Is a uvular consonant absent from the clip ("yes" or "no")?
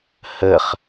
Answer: no